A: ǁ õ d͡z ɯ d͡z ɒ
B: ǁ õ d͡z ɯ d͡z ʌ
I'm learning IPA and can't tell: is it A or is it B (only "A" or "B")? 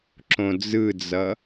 B